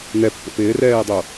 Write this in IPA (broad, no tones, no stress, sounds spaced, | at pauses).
n ɛ pː o̰ p ɪː r ɛː dˤ o